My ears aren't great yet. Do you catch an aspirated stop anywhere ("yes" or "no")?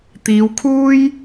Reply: yes